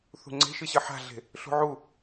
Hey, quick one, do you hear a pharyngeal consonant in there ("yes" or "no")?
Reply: yes